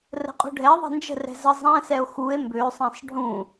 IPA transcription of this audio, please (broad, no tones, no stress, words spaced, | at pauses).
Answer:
rə̤qʼṳɖʱɛ ðˤɛ̤nd͡ʒə̤ rɛ̤zə zˤɛ̃sɛo̯ xue̯ mbøsˤɛ̃sˤ ɖʱũ